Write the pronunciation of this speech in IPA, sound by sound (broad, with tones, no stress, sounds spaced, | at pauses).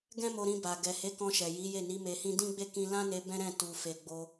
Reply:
ɡ ɛ̃˦ m o˧ ɾ ĩ˧ b a˨ ɡ ɛ˨ h e˨˦ k ɔ̃˧ ʃ ɛ˨ j i˨˦ j e˦˨ n i˨˦ m e˧ h ĩ˦ d ĩ˦ ɡ͡b e˦˨ k ĩ˧ l ã˦ n e˧ b ɛ̃˦ ɾ ɛ̃˦˨ t u˨ f e˨ ɡ͡b o˧